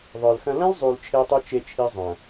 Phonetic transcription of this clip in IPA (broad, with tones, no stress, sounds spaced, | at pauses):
ðˤ ə˞˨ l x ɐ̃˦ l ɐ̃˦ l zˤ u˨ l t͡ʃʰ e˦ tˤ u˦ t͡ʃ e˦ t͡ʃʰ i˦ zˤ ɐ̃˨